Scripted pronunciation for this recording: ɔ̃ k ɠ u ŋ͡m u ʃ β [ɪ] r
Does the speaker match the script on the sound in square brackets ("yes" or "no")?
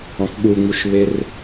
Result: yes